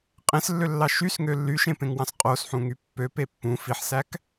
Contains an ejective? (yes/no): yes